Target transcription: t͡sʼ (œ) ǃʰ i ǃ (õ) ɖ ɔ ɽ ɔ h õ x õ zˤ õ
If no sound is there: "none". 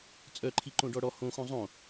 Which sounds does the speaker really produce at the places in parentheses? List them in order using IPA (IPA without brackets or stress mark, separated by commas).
œ, õ